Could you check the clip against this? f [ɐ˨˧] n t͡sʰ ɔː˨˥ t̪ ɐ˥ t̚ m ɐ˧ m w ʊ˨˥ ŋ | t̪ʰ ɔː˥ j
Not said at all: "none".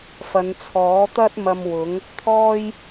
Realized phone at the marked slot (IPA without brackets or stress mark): ɐ˨˧